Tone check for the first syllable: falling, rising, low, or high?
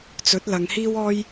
rising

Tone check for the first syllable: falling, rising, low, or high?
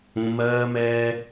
high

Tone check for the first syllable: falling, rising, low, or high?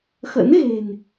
rising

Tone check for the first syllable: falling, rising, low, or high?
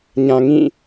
low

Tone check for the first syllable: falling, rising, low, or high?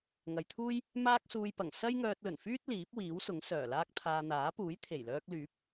low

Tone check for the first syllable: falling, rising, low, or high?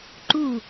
falling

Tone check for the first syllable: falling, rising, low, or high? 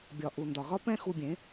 low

